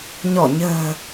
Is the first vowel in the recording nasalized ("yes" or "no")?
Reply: no